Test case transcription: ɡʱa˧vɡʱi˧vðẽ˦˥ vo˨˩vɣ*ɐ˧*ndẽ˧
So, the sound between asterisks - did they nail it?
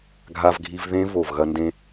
yes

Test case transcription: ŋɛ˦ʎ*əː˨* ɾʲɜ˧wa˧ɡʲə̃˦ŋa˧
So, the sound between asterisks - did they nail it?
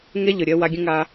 no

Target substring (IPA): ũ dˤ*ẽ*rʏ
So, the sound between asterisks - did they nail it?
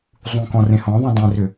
yes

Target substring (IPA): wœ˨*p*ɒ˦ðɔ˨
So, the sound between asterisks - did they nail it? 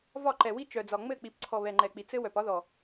yes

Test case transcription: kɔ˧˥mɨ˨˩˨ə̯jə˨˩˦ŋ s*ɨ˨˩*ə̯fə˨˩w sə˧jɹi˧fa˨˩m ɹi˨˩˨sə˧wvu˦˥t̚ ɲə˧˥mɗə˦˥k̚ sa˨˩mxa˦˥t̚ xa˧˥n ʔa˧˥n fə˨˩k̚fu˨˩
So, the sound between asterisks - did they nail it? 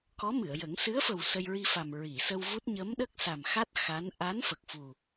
no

